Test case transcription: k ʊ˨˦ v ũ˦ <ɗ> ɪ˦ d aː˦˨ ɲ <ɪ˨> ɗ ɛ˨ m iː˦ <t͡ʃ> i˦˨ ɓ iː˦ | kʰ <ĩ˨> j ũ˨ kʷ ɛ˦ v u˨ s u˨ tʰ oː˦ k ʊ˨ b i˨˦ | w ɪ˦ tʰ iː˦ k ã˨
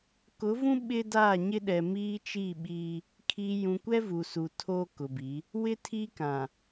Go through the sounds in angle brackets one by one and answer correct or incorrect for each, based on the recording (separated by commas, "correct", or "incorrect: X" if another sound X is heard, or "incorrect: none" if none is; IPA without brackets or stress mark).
incorrect: ɓ, incorrect: ɪ˦, correct, incorrect: i˨